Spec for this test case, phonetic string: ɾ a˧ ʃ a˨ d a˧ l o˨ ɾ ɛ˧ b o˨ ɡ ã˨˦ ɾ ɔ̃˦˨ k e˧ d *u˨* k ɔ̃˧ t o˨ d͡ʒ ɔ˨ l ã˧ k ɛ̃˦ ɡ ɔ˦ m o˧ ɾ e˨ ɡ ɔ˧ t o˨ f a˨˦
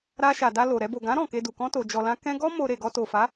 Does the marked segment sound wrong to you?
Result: no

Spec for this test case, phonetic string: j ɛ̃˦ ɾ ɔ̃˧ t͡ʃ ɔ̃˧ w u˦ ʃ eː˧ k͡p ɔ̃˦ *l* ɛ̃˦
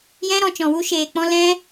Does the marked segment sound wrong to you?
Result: no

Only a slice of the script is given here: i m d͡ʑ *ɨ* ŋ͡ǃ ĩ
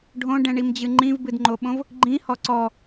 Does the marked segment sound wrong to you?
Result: no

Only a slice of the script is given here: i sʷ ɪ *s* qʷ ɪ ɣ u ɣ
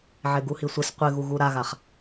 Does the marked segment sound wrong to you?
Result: no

